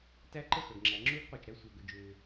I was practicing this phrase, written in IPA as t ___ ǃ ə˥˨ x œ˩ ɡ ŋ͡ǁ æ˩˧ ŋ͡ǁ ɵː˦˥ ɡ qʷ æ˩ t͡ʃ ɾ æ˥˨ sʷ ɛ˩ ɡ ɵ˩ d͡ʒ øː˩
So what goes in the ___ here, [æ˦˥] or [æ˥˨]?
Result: æ˦˥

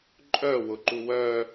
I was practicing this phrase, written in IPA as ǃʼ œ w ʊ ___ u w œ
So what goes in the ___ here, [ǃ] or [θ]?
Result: ǃ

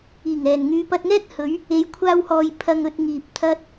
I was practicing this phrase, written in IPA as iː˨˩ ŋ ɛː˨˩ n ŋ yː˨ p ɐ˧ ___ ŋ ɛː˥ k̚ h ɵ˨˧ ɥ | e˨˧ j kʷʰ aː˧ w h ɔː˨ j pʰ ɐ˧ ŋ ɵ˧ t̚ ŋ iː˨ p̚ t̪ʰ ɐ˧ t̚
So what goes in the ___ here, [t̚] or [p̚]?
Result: t̚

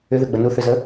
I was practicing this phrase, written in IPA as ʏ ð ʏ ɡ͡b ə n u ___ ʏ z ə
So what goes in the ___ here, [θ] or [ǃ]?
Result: θ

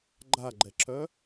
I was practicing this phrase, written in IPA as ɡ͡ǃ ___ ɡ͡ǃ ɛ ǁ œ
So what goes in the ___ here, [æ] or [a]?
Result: a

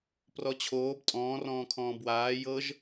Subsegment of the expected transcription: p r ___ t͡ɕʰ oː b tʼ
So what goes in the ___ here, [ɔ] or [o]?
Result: ɔ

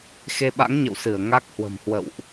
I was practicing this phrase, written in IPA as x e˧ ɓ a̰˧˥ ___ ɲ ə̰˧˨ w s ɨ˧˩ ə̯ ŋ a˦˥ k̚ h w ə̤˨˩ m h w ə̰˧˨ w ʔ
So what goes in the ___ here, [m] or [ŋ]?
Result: ŋ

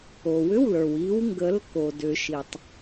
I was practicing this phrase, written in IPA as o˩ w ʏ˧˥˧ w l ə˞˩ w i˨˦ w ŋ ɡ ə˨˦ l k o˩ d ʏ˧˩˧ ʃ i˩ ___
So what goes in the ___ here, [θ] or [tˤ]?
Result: tˤ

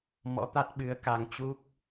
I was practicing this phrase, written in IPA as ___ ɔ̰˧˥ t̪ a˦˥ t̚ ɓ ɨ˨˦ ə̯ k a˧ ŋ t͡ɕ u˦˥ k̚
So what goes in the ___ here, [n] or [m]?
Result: m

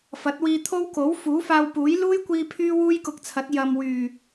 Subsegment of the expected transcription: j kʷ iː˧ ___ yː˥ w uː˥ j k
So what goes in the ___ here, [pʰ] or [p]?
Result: pʰ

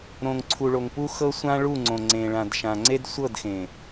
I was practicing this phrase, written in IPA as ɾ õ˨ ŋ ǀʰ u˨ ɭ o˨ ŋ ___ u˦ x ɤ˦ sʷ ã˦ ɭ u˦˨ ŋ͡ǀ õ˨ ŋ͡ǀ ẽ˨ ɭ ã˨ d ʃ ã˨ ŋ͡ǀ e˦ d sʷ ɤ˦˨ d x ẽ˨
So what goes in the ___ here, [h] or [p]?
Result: p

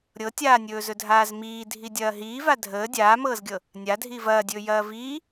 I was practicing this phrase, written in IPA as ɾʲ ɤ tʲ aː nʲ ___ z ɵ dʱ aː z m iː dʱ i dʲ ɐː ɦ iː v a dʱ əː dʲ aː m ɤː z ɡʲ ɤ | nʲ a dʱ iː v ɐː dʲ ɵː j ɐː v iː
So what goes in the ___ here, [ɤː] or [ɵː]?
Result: ɵː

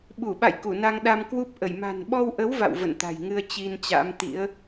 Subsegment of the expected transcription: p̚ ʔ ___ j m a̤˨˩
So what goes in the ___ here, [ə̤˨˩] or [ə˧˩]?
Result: ə˧˩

